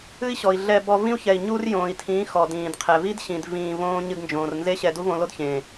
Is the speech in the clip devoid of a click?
yes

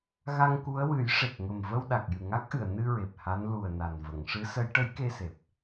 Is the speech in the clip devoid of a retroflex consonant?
no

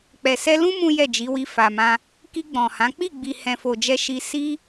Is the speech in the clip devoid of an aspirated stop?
yes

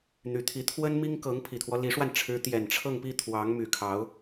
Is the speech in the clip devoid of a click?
yes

